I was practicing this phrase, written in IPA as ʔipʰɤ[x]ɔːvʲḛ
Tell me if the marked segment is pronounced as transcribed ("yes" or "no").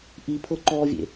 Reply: no